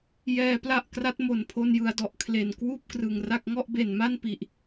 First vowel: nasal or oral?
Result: oral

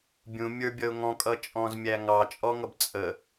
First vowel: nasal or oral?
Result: nasal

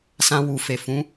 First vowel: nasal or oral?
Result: nasal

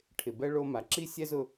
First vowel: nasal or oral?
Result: oral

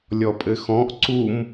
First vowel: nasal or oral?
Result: oral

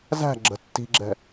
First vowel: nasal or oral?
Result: oral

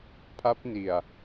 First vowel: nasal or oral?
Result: oral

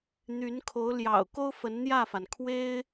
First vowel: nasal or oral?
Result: oral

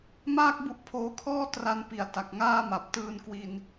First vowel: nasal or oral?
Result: oral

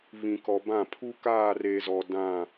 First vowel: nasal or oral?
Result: nasal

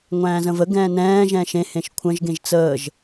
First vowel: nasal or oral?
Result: nasal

